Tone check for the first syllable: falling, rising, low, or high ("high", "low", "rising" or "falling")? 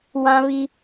high